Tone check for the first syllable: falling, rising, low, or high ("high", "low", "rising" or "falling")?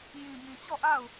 low